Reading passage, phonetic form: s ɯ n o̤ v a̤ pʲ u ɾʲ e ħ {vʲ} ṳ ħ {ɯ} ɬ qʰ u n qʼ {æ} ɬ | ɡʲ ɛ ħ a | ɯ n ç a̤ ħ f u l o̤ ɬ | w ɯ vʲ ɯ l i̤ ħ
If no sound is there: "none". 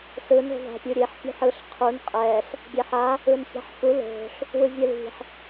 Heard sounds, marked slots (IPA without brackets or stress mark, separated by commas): pʲ, ɯ, ɛ